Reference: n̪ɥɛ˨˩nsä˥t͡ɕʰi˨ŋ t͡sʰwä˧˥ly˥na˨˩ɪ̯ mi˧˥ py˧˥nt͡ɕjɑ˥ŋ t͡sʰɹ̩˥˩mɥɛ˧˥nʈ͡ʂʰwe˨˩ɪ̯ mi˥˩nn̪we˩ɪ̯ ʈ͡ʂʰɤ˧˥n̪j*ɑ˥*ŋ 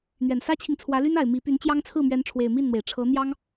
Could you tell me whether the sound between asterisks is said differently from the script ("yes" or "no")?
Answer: no